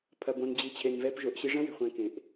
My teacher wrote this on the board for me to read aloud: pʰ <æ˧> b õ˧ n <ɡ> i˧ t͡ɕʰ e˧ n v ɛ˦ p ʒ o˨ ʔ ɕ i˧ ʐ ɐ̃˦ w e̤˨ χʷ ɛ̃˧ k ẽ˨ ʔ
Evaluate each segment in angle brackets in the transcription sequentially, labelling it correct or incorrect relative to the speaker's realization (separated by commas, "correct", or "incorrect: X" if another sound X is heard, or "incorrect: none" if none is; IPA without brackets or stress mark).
incorrect: ɐ˧, incorrect: d͡ʑ